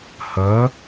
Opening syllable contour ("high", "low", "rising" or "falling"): rising